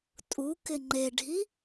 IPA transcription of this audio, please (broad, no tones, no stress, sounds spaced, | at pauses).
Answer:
tʼ u k ɪ ŋ͡ǃ e ɖʱ i